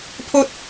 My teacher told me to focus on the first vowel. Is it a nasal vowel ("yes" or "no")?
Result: no